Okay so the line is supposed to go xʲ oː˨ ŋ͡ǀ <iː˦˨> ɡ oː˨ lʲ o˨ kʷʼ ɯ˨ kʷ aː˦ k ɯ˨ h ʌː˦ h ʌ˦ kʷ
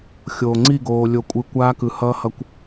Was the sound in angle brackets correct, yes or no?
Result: no